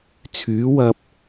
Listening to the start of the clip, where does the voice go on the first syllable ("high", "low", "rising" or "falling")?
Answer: rising